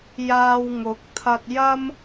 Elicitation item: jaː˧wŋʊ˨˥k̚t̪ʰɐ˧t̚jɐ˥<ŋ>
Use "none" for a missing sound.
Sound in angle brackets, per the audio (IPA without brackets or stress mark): m